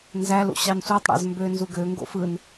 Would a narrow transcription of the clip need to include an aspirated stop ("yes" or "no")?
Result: no